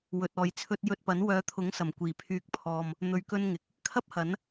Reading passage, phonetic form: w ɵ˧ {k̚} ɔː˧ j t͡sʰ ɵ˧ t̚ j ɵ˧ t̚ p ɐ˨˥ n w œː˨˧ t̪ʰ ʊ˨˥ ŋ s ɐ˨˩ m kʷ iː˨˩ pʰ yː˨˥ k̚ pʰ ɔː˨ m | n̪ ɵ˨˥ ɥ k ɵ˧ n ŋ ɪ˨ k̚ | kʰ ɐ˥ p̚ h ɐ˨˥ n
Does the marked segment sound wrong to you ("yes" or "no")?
yes